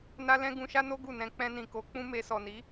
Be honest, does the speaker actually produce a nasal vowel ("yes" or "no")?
yes